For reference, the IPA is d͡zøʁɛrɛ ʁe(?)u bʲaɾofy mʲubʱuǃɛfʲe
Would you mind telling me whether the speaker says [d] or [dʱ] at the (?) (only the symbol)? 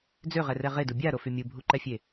d